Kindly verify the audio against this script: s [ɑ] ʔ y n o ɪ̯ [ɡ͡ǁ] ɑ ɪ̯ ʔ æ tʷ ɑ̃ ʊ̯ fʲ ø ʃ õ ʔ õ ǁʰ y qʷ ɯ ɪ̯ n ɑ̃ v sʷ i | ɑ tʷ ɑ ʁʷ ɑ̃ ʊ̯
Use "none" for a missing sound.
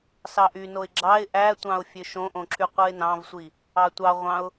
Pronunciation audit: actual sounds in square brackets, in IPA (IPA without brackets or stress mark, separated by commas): ɑ, ɡ͡ǁ